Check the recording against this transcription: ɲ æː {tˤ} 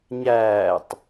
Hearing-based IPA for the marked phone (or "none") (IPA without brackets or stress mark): tˤ